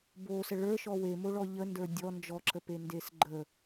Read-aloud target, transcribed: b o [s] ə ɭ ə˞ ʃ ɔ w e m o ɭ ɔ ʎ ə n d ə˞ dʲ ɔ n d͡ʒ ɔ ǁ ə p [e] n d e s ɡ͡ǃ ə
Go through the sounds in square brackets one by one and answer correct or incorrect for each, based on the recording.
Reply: correct, correct

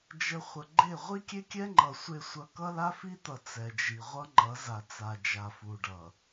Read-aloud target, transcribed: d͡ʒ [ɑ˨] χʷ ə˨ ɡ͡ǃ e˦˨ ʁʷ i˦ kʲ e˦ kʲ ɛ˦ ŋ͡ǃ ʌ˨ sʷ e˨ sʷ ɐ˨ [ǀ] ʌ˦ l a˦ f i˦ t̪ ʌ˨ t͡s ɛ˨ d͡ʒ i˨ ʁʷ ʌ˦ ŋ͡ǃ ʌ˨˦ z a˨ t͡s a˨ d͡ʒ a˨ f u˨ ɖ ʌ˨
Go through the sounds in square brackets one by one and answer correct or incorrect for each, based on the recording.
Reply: incorrect, incorrect

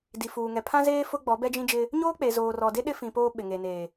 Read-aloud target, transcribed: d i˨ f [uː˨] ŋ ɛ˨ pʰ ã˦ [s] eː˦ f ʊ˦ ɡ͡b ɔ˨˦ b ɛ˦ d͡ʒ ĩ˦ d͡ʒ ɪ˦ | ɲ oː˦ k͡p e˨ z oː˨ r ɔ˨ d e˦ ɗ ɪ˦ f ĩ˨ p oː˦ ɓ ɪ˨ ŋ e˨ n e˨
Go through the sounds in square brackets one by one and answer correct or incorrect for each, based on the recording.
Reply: correct, incorrect

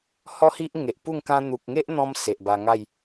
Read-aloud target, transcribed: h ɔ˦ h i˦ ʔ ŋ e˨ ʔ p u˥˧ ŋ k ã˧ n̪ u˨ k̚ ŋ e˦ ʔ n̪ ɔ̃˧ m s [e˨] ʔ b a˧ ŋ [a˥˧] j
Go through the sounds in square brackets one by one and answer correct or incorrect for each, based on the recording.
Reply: correct, correct

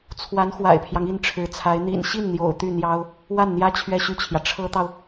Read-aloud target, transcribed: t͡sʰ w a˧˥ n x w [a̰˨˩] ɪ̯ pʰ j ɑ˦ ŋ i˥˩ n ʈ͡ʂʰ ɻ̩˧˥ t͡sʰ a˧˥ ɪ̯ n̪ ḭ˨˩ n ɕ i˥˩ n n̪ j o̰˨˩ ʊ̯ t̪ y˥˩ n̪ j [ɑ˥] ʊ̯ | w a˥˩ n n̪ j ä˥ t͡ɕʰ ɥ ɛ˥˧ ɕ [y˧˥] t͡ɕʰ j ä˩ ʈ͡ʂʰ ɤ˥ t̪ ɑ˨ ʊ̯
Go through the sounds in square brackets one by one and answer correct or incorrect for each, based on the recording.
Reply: correct, correct, incorrect

